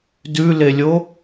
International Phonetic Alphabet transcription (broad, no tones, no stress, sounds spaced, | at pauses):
d ʉ l e lʲ o